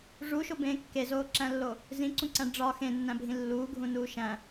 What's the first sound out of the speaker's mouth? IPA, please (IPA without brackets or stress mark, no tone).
ʐ